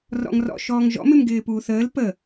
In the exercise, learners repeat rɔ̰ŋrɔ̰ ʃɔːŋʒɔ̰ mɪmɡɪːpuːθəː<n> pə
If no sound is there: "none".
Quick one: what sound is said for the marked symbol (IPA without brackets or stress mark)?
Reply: l